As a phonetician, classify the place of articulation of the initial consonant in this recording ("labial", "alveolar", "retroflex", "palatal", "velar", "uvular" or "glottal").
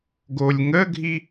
velar